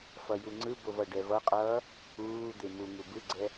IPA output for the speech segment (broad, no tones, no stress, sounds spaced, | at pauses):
f ʌ j u ŋ͡ǀ ɯ b o v ʌ ɖ ɛ v ʌ qʼ ʌː | uː d̪ e m u ŋ u b ɯ ɡ͡ǀ ɛ